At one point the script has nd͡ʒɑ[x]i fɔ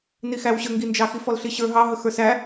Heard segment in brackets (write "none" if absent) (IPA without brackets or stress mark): x